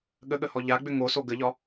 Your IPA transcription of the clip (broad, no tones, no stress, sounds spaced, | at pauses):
ɠ ə ɠ ə h ɔ ʎ a ɡ͡b ʏ ŋ o s o ɡ ə ʎ ɒ